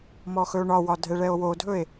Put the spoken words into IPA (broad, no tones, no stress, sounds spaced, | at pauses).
m ɔ x ɵ o̯ ɳ ɒ w ɒ dʱ ɛ ɭ ɛ o̯ w o dʱ ɵ e̯